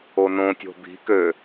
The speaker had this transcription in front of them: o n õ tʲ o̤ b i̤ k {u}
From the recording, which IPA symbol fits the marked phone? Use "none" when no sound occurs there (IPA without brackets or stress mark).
ø